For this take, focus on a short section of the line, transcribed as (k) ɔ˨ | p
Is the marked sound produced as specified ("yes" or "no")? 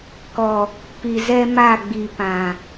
yes